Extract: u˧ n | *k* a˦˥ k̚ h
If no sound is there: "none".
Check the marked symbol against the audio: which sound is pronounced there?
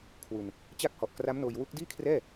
t͡ɕ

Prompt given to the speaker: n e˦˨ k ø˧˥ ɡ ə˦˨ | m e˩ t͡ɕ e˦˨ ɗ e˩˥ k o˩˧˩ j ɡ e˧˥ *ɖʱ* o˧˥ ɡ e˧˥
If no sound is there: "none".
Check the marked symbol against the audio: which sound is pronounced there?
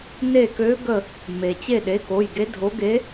dʱ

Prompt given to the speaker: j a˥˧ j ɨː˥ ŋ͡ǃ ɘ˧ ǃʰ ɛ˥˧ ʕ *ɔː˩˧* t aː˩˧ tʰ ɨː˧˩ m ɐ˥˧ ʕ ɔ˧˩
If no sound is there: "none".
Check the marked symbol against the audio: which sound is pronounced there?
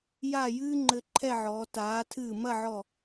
ɔː˩˧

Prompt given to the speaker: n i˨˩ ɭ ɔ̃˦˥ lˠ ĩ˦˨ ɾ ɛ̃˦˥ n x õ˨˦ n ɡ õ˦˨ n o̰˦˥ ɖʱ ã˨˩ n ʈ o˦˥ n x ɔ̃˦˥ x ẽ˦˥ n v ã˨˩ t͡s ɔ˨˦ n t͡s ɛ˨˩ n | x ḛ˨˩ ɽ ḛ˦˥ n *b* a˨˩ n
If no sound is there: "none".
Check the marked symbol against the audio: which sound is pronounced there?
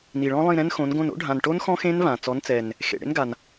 ɡ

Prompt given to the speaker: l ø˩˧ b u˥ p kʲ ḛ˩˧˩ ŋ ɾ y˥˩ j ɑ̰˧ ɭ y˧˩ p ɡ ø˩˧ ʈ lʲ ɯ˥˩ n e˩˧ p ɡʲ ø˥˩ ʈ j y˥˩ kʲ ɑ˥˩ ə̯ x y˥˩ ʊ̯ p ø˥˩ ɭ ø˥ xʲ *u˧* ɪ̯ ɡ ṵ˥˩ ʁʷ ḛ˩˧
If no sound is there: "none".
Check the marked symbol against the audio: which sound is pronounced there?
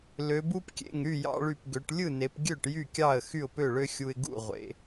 u˧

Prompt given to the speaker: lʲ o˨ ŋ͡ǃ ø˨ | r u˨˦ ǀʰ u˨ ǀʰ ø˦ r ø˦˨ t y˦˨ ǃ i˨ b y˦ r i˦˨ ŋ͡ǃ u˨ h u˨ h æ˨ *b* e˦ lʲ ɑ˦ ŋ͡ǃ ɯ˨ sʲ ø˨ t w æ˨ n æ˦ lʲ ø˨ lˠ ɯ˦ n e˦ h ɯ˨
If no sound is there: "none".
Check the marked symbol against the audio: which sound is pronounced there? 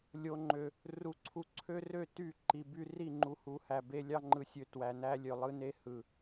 b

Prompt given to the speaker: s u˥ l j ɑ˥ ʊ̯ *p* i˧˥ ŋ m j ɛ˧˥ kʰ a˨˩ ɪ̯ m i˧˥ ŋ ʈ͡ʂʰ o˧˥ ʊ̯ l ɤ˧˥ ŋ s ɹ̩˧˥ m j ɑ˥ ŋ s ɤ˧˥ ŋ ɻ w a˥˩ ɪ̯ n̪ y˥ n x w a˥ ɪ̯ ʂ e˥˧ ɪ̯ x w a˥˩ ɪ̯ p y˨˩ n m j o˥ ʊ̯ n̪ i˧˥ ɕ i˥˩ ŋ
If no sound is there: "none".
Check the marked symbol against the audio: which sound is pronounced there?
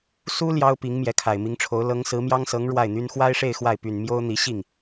p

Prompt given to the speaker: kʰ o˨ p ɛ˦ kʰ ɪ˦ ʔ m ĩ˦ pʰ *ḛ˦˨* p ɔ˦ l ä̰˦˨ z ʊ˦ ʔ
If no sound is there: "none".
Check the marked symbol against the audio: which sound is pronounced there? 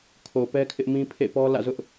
ḛ˦˨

